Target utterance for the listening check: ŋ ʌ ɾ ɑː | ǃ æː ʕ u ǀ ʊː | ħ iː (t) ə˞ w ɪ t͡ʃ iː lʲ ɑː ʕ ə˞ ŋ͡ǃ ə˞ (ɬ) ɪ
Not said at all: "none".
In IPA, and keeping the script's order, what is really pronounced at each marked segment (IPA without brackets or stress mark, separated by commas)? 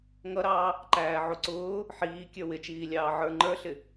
kʲ, ɬ